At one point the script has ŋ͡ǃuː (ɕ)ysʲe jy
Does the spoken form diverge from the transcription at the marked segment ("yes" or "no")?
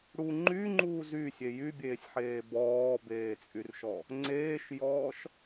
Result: yes